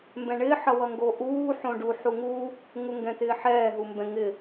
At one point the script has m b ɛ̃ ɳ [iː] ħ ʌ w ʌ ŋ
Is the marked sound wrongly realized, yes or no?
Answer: yes